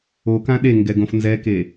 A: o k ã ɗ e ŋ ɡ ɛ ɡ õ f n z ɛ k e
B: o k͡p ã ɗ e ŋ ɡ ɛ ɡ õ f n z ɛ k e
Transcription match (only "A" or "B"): A